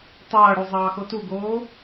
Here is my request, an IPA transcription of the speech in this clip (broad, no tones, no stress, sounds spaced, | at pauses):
tˤ ɐː ɽ u zˤ ɑː x o t u ɡ oː